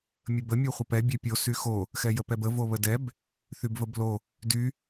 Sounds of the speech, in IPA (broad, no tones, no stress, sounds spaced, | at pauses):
mʲ ə b ə mʲ o χʷ ə p ɛ bʲ ɛ pʲ o s y x o | x ɛ j ə p ɛ b ə v o β ə d ɛ b | θ y b v ə b l o | d y